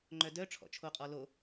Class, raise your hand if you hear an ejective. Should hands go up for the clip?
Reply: yes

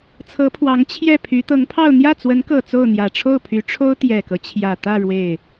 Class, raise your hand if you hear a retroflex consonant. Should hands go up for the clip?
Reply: yes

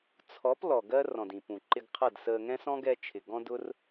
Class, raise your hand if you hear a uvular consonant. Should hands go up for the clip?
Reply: yes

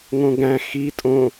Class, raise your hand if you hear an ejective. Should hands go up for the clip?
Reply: yes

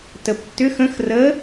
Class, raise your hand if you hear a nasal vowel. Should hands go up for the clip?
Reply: yes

